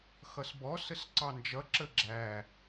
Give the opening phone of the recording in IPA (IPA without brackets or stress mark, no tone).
x